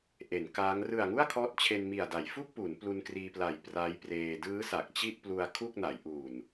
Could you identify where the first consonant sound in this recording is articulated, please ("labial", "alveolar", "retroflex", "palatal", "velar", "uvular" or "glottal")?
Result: glottal